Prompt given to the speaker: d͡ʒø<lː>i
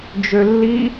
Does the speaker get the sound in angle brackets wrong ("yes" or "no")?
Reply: no